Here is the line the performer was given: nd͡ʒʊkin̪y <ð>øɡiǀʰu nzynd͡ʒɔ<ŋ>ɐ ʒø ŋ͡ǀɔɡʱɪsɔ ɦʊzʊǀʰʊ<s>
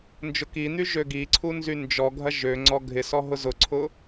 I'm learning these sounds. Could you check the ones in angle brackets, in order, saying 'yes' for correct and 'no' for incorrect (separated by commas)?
no, no, no